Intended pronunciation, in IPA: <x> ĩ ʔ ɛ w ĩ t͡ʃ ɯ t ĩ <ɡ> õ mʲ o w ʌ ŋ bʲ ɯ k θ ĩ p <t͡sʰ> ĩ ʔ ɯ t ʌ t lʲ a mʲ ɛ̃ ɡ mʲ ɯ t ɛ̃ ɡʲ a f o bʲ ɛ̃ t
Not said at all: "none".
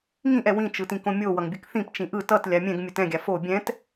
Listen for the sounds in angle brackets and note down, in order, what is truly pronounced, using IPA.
ŋ, k, t͡ʃ

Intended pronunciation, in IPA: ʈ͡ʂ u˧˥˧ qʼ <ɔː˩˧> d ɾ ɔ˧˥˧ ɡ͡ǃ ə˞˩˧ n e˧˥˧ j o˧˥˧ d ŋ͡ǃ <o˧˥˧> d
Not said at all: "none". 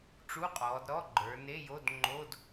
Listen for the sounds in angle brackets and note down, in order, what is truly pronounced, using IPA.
ɔː˩˧, o˧˥˧

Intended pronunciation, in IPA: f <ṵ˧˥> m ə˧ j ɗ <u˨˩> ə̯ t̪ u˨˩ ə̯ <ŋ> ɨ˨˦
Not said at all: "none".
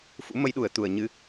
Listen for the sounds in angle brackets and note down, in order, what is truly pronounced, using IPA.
ṵ˧˥, u˨˩, ɲ

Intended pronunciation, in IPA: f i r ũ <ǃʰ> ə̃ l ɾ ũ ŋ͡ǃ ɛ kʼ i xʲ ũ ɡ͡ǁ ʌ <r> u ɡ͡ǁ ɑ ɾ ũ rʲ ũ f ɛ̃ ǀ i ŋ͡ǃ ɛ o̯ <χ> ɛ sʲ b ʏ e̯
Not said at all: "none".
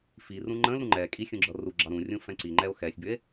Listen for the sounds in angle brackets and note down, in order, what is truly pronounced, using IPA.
ŋ͡ǃ, r, x

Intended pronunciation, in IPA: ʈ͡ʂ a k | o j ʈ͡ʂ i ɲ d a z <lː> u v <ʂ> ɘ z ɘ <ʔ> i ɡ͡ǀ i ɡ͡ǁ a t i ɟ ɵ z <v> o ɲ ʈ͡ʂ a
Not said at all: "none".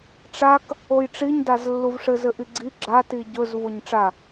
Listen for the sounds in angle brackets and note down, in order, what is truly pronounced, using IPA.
lː, ʂ, ʔ, v

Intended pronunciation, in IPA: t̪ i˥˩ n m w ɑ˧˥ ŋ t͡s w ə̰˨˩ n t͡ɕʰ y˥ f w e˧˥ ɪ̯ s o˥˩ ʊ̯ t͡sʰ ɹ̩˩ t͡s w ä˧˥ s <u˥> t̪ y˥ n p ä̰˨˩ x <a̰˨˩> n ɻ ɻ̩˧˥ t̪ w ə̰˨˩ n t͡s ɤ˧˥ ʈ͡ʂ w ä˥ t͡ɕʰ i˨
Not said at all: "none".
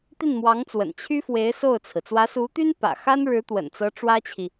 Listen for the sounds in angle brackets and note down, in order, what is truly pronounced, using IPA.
u˧˥, a˥

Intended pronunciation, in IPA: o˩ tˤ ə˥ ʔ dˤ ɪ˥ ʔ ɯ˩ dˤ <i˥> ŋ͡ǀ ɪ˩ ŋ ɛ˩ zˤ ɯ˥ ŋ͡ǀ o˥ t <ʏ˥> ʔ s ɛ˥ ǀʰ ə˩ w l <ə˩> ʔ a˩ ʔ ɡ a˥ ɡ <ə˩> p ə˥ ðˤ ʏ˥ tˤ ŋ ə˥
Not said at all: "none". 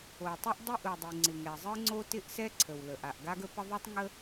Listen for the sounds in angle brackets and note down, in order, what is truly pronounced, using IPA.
i˩, ɪ˥, ə˩, ə˥

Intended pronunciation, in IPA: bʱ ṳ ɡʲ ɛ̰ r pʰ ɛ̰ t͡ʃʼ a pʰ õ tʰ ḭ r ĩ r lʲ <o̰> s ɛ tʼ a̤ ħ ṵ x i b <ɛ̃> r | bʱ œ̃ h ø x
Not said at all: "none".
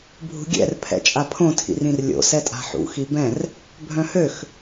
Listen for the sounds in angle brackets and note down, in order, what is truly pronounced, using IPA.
o̰, ɛ̃

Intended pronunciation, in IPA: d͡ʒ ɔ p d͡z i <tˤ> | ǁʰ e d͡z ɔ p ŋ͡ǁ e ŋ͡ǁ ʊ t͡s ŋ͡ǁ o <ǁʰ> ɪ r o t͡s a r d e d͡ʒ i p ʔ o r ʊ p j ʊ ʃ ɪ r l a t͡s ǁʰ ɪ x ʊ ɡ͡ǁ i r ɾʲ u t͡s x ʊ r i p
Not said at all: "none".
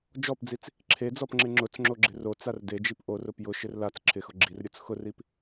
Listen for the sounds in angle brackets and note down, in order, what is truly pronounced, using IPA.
t͡s, ɡ͡ǁ

